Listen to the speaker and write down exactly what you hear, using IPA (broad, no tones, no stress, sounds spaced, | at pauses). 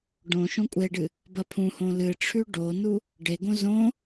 ɖ õ ʃ õ kʷʼ e ɖ ɨ | b ɐ pʰ ũ h õ l ɨ ʈ͡ʂʰ ʉ ɖ o n u | ɖ e ɡ õ z õ